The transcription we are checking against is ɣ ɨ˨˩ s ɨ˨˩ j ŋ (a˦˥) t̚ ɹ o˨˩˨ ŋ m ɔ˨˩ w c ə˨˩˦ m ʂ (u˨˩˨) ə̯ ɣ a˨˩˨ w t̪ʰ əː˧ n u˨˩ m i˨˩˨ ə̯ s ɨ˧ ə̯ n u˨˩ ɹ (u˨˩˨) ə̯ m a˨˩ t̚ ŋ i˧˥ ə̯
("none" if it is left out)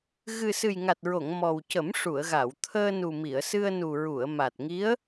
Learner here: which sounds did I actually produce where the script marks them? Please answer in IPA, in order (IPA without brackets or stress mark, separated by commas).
a˨˩, u˨˩˨, u˨˩˨